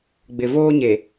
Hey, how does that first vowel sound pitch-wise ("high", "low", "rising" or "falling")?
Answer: low